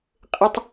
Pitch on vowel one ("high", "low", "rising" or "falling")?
high